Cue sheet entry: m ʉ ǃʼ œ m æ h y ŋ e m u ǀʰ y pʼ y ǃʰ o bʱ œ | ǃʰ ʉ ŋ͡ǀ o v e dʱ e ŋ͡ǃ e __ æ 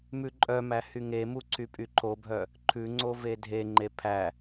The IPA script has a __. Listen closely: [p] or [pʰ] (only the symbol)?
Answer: pʰ